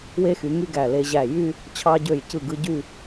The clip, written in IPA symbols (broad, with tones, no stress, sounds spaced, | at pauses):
w e˧ x y˩˧ ŋ y˧ ɡ æ˧˩ l e˧ ʑ æ˧˩ j y˥˧ | t͡ɕʰ ɑ˧ ɟ ø˧˩ j c ɯ˧˩ ɡ ɯ˧ ɟ y˥˧